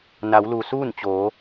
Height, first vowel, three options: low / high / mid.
low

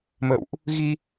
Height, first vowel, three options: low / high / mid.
mid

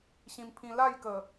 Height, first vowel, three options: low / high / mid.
high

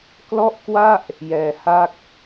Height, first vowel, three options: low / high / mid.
mid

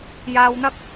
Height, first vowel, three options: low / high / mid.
low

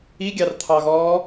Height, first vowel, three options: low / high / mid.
high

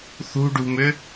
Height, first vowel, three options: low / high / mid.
high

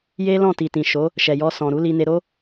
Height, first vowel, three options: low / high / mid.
mid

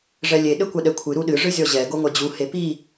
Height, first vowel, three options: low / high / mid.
mid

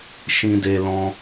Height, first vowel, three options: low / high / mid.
high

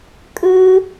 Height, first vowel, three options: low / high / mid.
high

